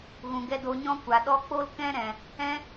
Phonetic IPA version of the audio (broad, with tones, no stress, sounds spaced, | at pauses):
ɣ ũ˨ ɡ ɛ˧ d o˧ ɲ ɔ̃˦ kʷ a˨ ɗ ɔ˦ k͡p o˦ l k ɛ̃˦ ɾ ɛ̃˨ | ɛ̃˦